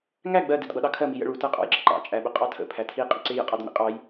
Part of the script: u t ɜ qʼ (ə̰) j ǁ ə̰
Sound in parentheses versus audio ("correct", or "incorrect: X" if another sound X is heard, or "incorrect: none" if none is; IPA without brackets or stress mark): incorrect: ɑ̰